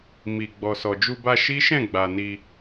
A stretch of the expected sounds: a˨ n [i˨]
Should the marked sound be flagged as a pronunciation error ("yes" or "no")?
yes